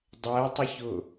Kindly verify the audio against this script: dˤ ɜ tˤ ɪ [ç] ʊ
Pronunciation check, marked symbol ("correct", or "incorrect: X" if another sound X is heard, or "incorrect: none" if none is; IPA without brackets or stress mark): correct